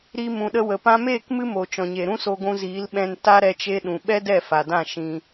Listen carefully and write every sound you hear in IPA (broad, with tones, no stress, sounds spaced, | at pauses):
ɾ i˧ m ũ˨ ɗ ə˧ w ə˨ p ã˧ m eː˦˨ k m ɨ˦ m o˨ t͡ʃ ɔ̃˨ ɲ e˨ ɾ ũ˦ s o˧ ɡʷ ũ˧ z iː˨˦ l ɓ ɛ̃˧ n t a˧ ɾ ɛ˧ t͡ʃ e˧ ɗ ũ˨ ɓ ɛ˦ d ɛ˦˨ f a˨ d ã˦˨ ʃ ĩ˧